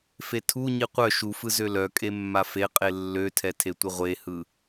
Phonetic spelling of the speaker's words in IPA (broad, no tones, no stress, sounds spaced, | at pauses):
f e tʰ u ɲ i qʷ œ ʃ u f ɯ z ø l œ kʼ e mː a f e qʼ e lː ø tʰ ɛ tʰ e tʷ ɯ ʁʷ e h ɯ